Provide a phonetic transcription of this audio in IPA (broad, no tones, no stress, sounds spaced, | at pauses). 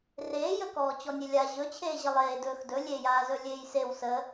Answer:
r eː j ə k ɔː t͡ɕ ɔ nʲ e lʲ a ʑ ɵ t͡ɕʰ eː ʑ ə lˠ eː d ɵː x d ɵ lʲ e j aː z ɵ lʲ eː j s e w s ə